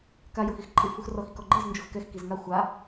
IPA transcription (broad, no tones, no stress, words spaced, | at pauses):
ka joxixǃʼɯ fuxrɔx ikɔɡ͡ǃɤz nd͡ʒoxkɛx kizŋa xʷa